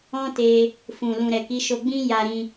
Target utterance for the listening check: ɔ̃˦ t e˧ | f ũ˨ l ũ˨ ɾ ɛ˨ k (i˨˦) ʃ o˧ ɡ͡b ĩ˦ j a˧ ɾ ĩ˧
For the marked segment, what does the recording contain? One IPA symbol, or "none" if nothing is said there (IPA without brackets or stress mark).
i˨˦